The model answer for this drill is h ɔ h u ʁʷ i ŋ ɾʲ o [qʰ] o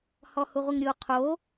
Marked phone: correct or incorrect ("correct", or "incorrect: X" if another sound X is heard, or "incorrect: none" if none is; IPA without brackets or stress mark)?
correct